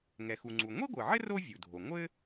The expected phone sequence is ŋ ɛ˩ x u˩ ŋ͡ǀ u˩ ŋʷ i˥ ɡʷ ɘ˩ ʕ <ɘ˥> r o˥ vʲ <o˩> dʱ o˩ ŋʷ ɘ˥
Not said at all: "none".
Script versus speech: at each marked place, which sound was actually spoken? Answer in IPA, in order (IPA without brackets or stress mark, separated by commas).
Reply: ɘ˥, u˩